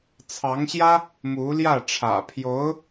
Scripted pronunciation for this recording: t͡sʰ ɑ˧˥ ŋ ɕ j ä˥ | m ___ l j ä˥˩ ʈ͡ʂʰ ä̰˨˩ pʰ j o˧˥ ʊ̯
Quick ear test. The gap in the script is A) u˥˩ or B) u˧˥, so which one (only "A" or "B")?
B